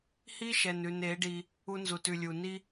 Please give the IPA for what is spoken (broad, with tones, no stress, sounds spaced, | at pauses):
h i˦ ʃ ɛ˨ n ʉ˨ n e˨˦ ɖ i˧ | u˧ n z u˨ t ʉ˨ lʲ u˨ n i˦